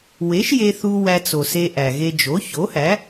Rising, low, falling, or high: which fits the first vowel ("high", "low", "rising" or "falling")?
rising